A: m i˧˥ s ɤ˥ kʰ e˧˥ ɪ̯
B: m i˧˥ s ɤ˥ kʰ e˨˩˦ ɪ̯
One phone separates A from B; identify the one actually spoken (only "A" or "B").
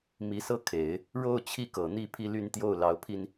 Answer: B